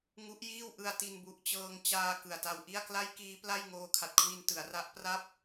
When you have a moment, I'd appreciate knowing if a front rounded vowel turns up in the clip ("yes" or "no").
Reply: no